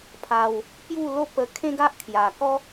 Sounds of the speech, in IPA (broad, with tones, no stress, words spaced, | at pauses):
pʰa˧w | pju˥˧lo˥˧ pə˧ kʰẽ˦ɡa˦ʔkʰja˨˩ kɔ˦